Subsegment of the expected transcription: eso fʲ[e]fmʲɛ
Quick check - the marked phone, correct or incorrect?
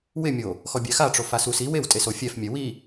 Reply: incorrect: ɛ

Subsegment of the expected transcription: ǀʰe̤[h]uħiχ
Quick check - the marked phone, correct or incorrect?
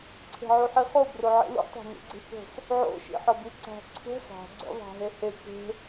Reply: incorrect: ʕ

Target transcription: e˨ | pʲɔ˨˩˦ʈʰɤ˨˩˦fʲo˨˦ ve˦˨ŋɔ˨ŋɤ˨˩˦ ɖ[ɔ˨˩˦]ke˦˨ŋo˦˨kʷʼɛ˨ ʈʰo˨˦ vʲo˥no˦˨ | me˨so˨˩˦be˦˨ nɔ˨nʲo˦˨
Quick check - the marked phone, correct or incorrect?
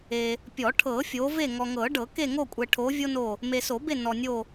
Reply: incorrect: ɤ˨˩˦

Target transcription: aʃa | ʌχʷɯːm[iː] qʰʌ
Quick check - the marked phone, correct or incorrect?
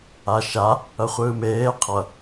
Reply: incorrect: eː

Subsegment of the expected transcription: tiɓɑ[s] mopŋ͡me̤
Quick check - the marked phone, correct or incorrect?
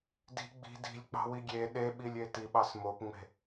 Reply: correct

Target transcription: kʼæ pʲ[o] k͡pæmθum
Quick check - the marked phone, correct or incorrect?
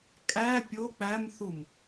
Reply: correct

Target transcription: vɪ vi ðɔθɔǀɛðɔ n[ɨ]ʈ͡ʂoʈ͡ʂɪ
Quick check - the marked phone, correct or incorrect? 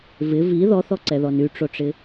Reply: incorrect: y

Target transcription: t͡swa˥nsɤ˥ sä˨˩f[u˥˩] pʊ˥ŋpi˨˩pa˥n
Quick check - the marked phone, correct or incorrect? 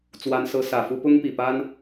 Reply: incorrect: u˥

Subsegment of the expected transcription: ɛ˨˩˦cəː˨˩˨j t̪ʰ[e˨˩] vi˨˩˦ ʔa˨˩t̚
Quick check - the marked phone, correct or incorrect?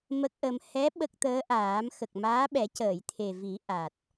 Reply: correct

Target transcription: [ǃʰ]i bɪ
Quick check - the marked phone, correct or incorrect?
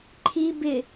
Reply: correct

